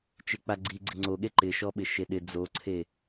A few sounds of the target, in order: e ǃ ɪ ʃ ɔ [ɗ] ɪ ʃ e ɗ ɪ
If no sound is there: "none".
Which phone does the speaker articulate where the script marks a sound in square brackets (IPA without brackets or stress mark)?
ɓ